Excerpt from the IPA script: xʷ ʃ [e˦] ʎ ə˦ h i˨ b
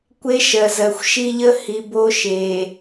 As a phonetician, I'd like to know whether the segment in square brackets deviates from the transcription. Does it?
yes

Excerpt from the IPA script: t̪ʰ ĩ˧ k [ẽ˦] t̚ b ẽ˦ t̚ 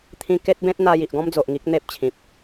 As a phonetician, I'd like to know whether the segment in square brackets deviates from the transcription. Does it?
yes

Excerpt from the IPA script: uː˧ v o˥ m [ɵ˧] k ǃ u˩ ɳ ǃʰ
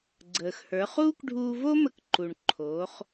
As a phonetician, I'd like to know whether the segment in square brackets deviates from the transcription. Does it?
yes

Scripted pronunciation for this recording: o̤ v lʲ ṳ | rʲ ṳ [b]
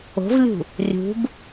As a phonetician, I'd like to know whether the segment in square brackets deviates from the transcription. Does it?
no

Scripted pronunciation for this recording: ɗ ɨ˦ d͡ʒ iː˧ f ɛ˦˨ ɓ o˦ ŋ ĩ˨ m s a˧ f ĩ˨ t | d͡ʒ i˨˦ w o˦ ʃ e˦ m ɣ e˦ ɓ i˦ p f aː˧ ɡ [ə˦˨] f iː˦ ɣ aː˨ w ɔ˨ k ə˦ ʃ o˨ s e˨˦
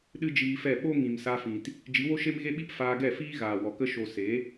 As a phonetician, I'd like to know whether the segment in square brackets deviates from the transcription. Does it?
yes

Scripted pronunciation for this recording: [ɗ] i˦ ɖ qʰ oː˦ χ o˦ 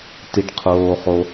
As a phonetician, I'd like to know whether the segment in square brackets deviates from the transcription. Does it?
yes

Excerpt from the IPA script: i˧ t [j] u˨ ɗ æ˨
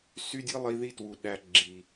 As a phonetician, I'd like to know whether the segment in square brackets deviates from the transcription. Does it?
yes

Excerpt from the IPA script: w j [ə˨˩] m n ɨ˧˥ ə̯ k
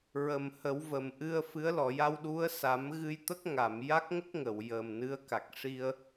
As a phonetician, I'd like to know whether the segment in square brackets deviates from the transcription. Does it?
no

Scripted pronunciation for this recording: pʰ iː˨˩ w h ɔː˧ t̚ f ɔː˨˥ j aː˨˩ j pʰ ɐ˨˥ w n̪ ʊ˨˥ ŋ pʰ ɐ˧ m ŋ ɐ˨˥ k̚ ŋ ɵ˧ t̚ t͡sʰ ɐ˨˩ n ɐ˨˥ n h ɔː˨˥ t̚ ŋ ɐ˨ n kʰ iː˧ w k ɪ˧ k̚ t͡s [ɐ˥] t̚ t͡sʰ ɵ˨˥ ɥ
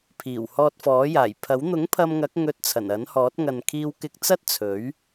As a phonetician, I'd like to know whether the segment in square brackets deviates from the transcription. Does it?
no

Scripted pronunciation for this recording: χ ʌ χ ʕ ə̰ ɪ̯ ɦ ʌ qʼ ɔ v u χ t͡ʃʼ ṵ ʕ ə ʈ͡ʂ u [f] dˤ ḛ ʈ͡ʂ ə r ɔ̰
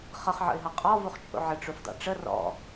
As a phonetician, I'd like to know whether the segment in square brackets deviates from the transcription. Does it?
no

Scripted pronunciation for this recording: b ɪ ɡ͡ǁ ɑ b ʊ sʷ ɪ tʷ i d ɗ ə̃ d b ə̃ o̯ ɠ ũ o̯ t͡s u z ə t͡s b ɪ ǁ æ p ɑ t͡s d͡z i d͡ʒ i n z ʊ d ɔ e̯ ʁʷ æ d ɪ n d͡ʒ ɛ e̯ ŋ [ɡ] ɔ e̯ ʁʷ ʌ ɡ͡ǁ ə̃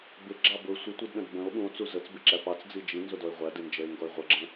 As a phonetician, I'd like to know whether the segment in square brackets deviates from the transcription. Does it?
no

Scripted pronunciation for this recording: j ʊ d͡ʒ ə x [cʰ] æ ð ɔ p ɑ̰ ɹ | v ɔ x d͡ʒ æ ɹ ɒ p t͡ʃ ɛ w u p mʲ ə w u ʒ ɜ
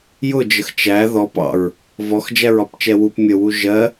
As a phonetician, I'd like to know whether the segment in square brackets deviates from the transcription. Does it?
yes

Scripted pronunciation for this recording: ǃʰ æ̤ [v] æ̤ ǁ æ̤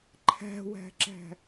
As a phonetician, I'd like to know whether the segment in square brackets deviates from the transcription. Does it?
yes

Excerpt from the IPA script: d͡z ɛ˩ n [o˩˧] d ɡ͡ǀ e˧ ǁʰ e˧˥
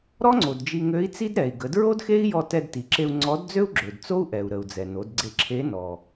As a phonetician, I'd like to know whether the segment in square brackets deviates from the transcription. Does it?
no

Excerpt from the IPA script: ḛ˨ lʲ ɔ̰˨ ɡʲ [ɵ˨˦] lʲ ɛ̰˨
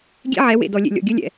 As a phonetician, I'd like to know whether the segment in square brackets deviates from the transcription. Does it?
yes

